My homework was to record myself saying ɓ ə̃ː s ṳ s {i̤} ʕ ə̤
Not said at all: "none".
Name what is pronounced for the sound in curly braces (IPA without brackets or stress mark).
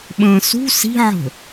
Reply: i̤